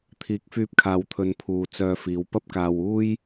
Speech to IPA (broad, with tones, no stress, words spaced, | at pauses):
t̪ʰiː˨˥k̚fyː˧p̚kʰaː˨wt̪ʰɵ˨n pʰuː˨t͡sœː˧fiː˨˧w pɐ˥p̚kaː˨w uː˥j